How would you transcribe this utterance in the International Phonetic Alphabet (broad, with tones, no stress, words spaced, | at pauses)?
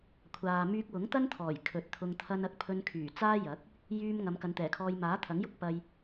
kʷʰaː˨ myː˧k̚wʊ˨˥ŋt̪ɐ˥nt̪ʰɔː˨˩j kʰɵ˨˥t̚t̪ʰʊ˧ŋ t̪ʰɐ˧nɐ˨˥k̚pʰɵ˧nkʰyː˨˩ t͡saː˥jɐ˨˥k̚ | jyː˧m ŋɐ˨˧m kɐ˨˧nt̪ɛː˨˩kʰɔː˧j maː˨˥t̪ʰɐ˨˥ŋjʊ˥k̚ pɐ˧j